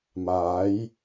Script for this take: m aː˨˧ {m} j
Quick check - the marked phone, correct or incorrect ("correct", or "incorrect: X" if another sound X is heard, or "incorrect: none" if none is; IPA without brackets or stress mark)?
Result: incorrect: none